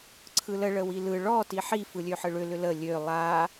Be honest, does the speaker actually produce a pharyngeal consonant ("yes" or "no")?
yes